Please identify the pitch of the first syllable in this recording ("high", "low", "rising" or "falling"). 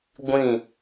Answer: falling